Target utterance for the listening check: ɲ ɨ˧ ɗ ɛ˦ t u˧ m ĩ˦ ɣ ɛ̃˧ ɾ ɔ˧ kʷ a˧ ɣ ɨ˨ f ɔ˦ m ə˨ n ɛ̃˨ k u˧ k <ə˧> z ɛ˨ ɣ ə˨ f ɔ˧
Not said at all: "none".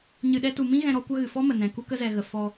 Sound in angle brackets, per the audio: ə˧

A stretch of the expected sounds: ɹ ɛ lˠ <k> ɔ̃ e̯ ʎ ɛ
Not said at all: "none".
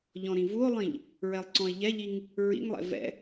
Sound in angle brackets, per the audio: ǀ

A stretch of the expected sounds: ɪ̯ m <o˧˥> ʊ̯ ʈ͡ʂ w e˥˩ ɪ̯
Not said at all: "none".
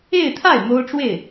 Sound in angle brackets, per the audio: o˥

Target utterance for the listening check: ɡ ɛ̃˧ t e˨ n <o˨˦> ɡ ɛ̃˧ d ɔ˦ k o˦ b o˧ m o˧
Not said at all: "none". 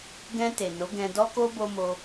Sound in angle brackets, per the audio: o˨˦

